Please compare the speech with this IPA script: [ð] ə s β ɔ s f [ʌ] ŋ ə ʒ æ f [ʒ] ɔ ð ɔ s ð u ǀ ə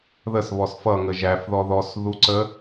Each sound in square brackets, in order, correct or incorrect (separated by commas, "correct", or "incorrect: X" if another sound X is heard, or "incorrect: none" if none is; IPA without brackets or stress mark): correct, correct, incorrect: ð